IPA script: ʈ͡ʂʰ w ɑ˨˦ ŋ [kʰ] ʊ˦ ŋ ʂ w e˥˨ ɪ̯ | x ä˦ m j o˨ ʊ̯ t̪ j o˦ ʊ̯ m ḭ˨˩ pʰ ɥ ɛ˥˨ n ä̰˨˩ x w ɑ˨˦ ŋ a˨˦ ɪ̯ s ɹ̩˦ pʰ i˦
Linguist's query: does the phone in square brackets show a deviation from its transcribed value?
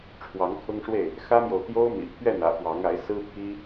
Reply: no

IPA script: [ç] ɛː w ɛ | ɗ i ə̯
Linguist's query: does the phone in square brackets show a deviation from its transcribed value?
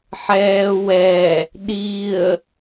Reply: yes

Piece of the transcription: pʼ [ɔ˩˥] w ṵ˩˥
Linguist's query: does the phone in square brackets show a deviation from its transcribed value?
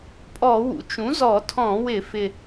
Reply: yes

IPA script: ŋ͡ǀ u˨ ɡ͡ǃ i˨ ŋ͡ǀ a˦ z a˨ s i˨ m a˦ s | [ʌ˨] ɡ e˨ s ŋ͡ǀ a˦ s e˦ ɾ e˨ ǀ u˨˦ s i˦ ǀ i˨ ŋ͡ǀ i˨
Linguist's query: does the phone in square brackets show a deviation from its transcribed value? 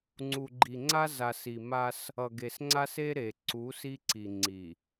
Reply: no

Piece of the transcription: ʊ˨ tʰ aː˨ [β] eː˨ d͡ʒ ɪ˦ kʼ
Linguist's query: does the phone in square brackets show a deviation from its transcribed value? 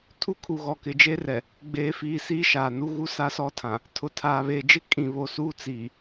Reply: no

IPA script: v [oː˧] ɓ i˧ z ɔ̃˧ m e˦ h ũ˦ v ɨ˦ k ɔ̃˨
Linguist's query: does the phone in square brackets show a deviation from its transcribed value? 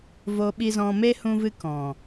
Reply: yes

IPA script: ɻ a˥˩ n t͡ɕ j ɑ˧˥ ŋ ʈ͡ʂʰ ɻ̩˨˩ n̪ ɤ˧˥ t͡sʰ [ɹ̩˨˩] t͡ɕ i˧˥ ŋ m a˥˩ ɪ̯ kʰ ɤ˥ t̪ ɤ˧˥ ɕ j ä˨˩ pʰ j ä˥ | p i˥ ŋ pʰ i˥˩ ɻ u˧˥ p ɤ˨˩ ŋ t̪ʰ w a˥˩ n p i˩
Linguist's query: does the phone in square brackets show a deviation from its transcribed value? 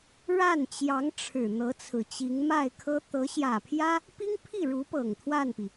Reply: no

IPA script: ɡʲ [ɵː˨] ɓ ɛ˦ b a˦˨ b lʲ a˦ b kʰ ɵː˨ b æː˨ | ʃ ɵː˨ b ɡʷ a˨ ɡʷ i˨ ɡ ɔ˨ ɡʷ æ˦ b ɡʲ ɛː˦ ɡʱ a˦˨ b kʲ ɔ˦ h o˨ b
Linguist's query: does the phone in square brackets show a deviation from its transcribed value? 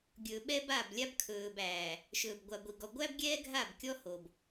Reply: no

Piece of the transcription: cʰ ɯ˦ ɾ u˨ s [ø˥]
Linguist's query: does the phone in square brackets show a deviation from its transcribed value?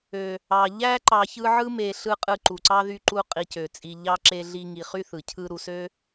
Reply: no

